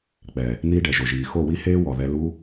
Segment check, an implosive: absent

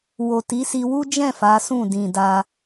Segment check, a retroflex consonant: absent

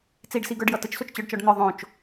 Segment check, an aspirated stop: absent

